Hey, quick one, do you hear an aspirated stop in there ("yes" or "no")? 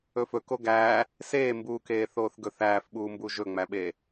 no